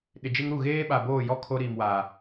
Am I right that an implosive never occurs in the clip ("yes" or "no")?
no